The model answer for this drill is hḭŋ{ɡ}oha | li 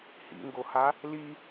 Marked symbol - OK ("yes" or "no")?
yes